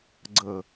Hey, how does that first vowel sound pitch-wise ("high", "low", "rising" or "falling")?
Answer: low